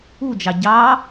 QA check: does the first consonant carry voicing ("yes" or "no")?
yes